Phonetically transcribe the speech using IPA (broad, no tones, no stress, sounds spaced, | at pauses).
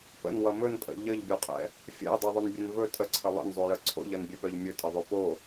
p ə̰ n w ʌ m ɵ n pʼ ə̰ ʎ ə ʎ bʲ o qʼ ɛ̰ | fʲ ɛ̰ j dˤ ɛ ðˤ ɵ n bʲ ɛ n v ɵ tʼ ə ǀʰ ə lˠ ə̰ n zˤ o j ə ǀʰ o̰ ʎ ʌ n bʲ ɛ p œ ʎ mʲ ɵ tʼ ʌ ðˤ ɵ p o